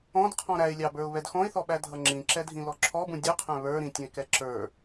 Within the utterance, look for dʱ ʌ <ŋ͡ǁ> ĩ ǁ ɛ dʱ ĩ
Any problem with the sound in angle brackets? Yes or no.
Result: no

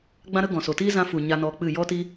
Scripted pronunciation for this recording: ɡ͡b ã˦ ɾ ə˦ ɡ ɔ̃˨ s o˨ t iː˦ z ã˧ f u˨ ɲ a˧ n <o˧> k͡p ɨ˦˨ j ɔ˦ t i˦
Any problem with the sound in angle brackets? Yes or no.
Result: yes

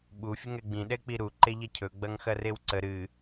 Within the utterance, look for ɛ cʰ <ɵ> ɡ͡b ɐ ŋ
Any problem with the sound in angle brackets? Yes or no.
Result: no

